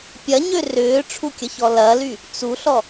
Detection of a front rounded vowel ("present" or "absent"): present